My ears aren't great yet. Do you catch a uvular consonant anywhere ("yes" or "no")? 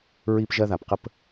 yes